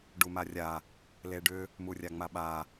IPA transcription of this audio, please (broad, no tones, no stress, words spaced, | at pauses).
ɖumarʲa | leɖʏ | murʲaŋ͡maɓa